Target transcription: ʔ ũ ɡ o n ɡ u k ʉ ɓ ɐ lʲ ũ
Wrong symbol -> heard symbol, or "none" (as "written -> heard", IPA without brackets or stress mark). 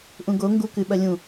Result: n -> ŋ